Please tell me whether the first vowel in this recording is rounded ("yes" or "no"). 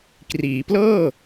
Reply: no